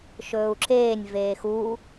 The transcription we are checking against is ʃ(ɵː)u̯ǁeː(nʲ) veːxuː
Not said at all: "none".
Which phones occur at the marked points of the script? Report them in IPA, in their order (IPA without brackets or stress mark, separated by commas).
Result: ɵː, nʲ